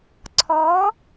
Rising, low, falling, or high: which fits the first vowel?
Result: rising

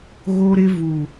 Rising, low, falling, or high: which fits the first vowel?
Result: high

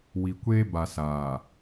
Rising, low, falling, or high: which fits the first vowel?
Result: low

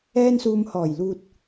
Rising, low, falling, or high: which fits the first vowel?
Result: high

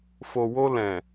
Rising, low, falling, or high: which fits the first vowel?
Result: low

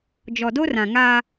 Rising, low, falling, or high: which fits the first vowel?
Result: low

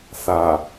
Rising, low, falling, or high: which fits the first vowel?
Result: low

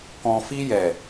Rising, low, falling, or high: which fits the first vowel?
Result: low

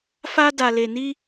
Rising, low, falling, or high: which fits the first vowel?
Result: high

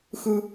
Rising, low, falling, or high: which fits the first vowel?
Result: high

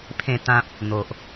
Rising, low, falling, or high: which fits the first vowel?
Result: falling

